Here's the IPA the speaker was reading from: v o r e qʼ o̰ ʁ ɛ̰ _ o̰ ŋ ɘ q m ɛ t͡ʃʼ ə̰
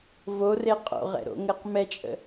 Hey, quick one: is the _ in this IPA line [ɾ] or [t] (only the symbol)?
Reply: ɾ